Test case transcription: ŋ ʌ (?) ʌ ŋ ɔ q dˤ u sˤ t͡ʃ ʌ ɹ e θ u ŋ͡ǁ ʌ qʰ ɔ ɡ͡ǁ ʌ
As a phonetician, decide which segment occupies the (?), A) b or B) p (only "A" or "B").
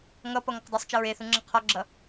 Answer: B